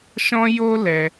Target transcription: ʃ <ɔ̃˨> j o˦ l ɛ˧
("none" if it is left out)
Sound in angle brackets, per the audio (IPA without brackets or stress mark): ɔ̃˦